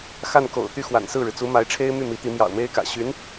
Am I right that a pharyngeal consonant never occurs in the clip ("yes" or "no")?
yes